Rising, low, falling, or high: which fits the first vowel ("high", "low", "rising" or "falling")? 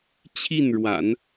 falling